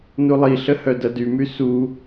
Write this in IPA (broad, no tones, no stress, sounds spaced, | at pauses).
n u lˠ i ɬ ə h œ d ɐ d y m y s u